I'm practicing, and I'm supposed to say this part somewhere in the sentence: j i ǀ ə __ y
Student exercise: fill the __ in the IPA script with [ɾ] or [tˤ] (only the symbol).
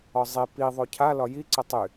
tˤ